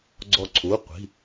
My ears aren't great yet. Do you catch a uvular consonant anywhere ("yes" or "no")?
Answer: yes